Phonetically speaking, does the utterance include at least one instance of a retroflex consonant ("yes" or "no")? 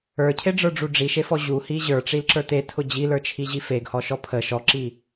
yes